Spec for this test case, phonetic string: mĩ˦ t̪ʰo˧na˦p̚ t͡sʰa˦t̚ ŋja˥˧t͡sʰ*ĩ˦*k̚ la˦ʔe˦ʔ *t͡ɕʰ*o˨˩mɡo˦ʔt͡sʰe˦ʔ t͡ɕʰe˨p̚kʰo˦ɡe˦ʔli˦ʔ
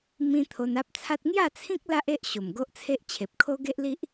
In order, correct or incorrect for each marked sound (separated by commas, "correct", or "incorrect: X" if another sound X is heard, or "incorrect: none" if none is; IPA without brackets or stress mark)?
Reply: correct, incorrect: ɕ